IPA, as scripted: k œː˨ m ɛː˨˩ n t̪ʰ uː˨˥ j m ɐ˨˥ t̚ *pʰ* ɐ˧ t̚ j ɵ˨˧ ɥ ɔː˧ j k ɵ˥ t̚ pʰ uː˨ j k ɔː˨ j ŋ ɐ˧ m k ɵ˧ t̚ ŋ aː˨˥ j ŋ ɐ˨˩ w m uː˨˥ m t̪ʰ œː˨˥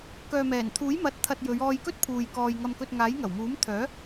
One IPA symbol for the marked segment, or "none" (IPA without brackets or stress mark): t̪ʰ